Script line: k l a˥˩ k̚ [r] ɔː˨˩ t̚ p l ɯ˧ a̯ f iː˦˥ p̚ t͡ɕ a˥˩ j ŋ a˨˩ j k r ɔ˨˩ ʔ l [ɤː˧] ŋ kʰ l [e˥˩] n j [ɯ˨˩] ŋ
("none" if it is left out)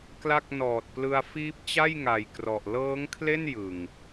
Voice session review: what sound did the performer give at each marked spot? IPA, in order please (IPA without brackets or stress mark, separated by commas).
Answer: n, ɤː˦˥, e˥˩, ɯ˨˩